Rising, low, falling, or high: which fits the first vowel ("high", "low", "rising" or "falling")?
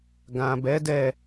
low